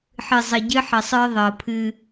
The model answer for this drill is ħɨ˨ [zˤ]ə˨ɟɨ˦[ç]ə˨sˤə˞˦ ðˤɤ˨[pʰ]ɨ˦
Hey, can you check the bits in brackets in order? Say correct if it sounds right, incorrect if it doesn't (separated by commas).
correct, incorrect, correct